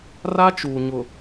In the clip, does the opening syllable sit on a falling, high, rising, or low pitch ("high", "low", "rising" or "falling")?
high